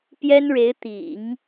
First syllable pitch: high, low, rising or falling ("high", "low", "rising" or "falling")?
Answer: high